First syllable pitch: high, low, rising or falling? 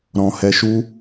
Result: low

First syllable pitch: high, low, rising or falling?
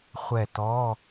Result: falling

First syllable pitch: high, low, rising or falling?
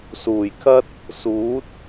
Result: low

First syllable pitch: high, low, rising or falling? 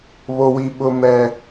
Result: low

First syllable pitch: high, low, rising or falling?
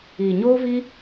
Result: low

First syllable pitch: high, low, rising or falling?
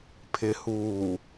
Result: low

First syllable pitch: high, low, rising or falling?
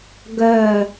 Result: falling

